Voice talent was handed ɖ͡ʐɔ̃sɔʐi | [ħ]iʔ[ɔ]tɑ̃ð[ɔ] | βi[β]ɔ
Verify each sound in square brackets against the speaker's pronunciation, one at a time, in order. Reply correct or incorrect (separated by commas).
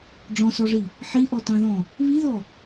correct, correct, incorrect, incorrect